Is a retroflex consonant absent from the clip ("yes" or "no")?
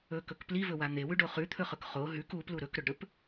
no